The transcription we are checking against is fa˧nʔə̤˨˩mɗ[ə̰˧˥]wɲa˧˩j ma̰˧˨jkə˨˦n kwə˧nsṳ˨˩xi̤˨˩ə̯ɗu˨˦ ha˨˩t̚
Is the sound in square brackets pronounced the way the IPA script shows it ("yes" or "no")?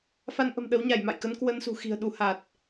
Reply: no